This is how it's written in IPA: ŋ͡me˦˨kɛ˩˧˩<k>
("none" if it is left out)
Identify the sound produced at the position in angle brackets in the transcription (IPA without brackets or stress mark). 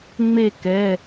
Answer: none